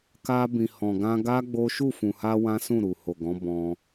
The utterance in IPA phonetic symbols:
k a˧ b ĩ˨ h ɔ̃˨ ɡ ã˧ ɡ a˦ ɡ͡b o˦ ʃ u˦˨ f ũ˨ h a˧ w ã˦ s ũ˦˨ ɾ u˨ h o˨ ɡ ɔ̃˨˦ b ɔ̃˧

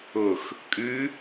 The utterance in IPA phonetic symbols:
ʊ x | kʼ ʉ

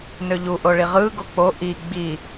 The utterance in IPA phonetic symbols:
n ø ʎ u ʔ o ɭ i ʁ ɯː ɡ o k͡p o ʔ i ɡ͡b i

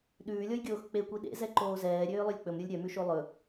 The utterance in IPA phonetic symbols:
ɗ ʉː lʲ ɔ j ɡʲ oː x k͡p e kʷ i ɗ ḛ z ɛ ǃ oː z ɛː ɾʲ øː lˠ ø lʲ k͡p ɵ m ɾʲ o lʲ ɾʲ œ m ʉ ʃ o lˠ ɵ

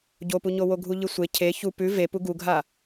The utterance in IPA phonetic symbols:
ɟ o p u ɲ o w o ɡʱ u ʎ ɨ sʷ e cʰ e ç u p ʉ v e p u ɡ u ɡʱ a

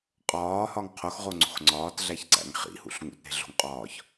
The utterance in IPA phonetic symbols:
qʼ ɒː h ɒ ŋ qʰ o x ʁ o ŋ͡ǀ o̤ x ŋ͡ǀ ɒː t ɮ æ ç ǀ æ̰ ŋ χ ḭ h ṵ ɬ ŋ ṵ t ɾ e̤ ɮ o̤ ŋ qʼ ɒː ç

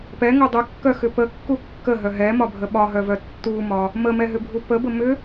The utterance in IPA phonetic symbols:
p ɛ ŋ o dˤ ʏ kː œ x ʏ p ə kː u kː ə ɦ œ ɦ ɛ m ɒ bʱ ə ɓ ɒ ɦ œ v œ tː u m ɒ | m ə m ɛ ɦ ʏ bʱ u p ə b ə m ʏ

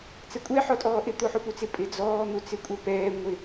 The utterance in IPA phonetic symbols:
t͡s ɛ kʷʼ ɛ ħ ɔ tʼ ɔː ʔ ɪ t̪ o ħ u p u t͡s ɪ pʼ ɪ d͡z ɔː n̪ u t͡s ɪ kʷʼ ɛ p ɛː ŋʷ ɪ

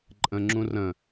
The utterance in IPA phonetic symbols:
ǃʼ ə̃ ŋ͡ǁ ũ r ə̃

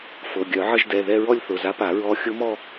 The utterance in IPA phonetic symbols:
f ɤ˩˧˩ ɡʲ œ˨˩˦ ʕ ə˥˧ ʒ d ɛ˩˧˩ ð ɛ˥˧ ɹ ɔ˥˧ lʲ θ ʊ˩˧˩ z a˧˥ p a˨˩˦ ɹ ɔ˧˥ xʲ ʊ˧˥ m ɔ˥˧

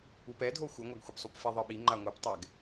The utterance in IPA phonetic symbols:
u p ɛ dʱ o xʷ ɯ ŋʷ a ɡ xʷ e p sˤ u p f i ðˤ ɯ ɓ i ŋ͡ǃ a ŋʷ ɯ p tˤ ɛ ɡ

